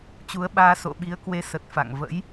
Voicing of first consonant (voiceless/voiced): voiceless